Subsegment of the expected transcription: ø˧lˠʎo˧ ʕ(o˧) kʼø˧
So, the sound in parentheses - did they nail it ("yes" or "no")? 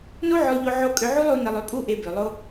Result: yes